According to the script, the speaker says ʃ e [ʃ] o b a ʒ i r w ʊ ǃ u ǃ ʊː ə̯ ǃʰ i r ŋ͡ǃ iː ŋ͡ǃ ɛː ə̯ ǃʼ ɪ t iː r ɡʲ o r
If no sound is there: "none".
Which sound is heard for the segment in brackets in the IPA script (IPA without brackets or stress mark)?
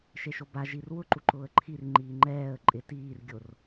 ʃ